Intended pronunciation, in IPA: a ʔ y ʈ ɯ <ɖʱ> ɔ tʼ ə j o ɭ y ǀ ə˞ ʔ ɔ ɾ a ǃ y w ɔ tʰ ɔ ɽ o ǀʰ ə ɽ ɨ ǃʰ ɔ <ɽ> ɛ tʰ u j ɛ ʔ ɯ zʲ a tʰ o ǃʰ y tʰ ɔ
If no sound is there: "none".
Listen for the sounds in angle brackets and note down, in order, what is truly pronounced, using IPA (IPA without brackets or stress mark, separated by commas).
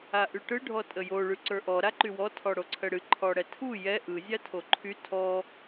ɖʱ, ɽ